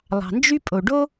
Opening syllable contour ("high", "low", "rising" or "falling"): low